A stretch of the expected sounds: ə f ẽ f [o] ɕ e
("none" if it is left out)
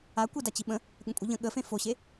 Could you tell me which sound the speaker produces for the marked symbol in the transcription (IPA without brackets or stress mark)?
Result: o